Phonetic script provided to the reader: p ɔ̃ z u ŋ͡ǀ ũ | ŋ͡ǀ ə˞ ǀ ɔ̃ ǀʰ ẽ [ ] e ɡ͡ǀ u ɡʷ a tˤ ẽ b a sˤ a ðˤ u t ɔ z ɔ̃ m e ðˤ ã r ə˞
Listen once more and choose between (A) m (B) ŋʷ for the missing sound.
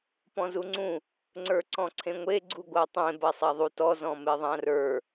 B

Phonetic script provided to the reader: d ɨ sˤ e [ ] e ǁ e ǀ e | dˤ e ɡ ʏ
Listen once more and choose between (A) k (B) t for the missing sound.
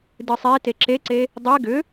B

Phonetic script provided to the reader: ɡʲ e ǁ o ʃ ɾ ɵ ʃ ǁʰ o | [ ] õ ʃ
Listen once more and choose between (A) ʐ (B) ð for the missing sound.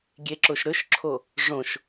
A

